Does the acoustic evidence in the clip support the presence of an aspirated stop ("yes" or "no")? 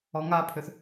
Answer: yes